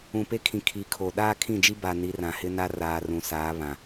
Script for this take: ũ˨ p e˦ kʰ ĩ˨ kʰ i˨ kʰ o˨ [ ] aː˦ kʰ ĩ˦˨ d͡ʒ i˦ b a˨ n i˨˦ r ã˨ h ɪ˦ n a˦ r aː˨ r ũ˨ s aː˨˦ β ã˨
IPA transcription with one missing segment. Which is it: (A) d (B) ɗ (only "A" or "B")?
B